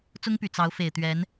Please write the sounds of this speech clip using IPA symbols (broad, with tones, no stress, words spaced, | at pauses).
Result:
t͡sʊ˥ŋpy˨˩ t͡sɑ˧˥ʊ̯ fe˨˩ɪ̯t̪ɥɛ˧˥n